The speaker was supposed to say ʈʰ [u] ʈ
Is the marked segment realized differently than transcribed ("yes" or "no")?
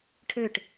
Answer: yes